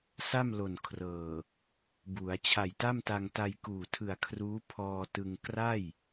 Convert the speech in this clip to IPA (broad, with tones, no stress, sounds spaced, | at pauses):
s a˥˩ m l o˨˩ n kʰ r ɤː˨˩ | b u˩˦ a̯ t͡ɕʰ a˨˩ j t a˥˩ m t a˧ ŋ t a˧ j k uː˨˩ tʰ ɯ˨˩ a̯ kʰ r uː˦˥ pʰ ɔː˧ t ɯ˧ ŋ k r a˥˩ j